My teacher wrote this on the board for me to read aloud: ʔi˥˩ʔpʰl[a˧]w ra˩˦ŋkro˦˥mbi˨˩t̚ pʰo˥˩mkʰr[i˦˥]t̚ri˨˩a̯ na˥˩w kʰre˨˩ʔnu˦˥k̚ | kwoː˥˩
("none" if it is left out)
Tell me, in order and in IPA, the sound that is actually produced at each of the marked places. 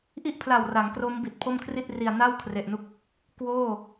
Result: a˨˩, i˥˩

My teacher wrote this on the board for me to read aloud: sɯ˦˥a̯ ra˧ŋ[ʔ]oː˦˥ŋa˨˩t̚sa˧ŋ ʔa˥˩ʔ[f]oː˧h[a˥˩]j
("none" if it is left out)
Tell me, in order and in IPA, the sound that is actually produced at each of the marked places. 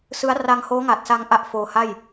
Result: h, f, a˥˩

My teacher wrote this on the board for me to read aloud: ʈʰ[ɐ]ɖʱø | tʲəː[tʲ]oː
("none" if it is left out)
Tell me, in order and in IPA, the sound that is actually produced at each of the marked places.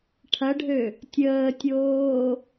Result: ɐ, tʲ

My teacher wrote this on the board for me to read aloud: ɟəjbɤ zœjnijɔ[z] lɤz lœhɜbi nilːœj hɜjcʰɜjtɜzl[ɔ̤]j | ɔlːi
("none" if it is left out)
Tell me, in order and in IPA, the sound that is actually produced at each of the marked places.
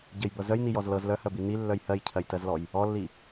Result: z, ɔ

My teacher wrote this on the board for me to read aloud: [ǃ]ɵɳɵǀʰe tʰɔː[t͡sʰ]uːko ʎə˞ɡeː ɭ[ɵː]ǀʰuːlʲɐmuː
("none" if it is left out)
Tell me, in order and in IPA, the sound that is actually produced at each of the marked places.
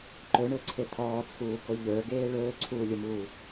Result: ǃ, t͡sʰ, ɵː

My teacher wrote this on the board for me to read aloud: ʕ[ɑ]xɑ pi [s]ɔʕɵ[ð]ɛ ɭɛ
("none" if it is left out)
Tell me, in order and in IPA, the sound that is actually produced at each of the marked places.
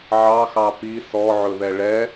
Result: ɑ, s, ð

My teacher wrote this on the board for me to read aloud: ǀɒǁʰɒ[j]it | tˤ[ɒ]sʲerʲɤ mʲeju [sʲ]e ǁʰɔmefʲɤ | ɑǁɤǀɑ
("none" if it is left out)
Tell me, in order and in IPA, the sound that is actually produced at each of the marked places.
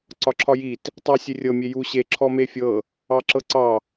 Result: j, ɑ, ɕ

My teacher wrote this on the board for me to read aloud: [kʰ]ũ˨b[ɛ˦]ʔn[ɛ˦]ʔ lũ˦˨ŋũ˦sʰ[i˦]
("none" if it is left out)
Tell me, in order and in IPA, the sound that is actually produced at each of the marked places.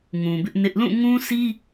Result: ŋ, ɪ˦, ɪ˦, i˦

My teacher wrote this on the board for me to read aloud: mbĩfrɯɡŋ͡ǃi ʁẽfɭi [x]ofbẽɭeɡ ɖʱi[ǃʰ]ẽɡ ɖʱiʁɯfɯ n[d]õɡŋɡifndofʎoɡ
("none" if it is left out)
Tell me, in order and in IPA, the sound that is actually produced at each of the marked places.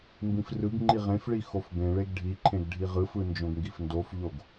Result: x, ǃʰ, d͡ʒ

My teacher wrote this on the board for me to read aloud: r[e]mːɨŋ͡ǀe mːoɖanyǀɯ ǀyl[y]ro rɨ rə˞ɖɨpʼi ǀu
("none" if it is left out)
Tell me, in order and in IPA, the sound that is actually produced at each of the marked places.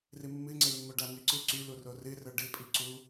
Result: ɨ, u

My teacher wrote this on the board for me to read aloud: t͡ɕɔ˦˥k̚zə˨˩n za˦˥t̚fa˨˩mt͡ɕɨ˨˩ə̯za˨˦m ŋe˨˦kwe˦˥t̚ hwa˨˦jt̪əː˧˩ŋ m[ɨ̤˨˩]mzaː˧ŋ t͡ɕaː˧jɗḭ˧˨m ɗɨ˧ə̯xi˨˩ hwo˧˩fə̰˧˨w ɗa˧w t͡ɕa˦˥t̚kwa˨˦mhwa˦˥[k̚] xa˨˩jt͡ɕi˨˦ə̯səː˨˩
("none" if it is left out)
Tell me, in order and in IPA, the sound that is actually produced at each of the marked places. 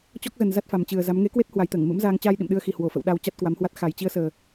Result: ɨ̰˧˥, t̚

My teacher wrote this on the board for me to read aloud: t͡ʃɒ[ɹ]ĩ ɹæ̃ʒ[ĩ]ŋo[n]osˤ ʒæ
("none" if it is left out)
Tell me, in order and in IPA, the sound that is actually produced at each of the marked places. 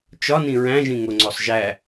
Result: n, ĩ, ŋ͡ǀ

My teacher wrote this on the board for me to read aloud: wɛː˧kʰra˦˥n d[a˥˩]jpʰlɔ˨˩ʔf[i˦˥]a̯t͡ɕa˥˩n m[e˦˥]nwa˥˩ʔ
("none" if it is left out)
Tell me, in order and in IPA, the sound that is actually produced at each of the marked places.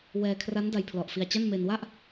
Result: a˧, i˧, e˧

